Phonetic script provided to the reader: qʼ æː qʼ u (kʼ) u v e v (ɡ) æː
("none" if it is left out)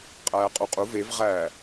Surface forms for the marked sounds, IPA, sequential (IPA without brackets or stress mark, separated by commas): qʼ, ʁ